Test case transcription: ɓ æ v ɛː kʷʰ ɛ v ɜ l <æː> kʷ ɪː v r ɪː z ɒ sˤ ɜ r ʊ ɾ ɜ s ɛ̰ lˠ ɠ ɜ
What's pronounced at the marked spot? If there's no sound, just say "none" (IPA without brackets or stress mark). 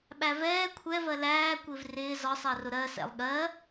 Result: æː